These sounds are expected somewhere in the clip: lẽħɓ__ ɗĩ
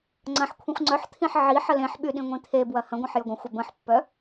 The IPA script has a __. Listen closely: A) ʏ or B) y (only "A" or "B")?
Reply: B